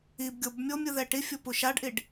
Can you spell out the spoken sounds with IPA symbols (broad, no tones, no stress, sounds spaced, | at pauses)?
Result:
i b ɡʲ o b mʲ o mʲ ɯ ð ɛ ʈ i fʲ o p u ʃ a ɖ ʔ i ɖ